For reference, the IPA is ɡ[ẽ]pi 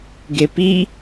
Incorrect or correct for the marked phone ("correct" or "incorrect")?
incorrect